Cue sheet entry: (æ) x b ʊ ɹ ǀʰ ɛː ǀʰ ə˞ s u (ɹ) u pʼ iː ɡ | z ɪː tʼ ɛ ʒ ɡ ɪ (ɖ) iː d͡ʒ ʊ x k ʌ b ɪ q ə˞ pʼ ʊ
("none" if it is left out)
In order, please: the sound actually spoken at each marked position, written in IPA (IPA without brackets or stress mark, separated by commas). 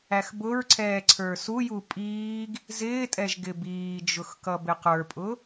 æ, j, b